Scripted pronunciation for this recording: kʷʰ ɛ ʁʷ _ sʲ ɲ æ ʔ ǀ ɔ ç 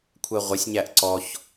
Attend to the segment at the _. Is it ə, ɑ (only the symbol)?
ə